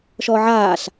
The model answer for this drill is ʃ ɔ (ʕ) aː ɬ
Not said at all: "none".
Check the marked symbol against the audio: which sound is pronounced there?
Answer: ʕ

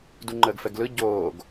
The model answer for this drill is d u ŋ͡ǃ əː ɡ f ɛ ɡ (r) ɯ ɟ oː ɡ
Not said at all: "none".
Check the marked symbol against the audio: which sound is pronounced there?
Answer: l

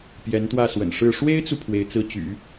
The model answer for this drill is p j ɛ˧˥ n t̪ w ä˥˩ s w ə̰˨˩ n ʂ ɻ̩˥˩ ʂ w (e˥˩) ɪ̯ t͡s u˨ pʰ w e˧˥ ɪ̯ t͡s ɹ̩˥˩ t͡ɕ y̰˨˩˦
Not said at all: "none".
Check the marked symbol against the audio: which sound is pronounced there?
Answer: e˥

